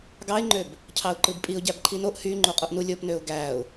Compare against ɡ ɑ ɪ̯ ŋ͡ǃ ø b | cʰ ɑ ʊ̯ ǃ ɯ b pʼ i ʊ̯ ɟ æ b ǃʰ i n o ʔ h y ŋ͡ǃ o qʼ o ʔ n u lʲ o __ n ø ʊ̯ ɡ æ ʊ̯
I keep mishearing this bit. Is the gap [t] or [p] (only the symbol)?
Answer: p